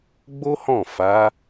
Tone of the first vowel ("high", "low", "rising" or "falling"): high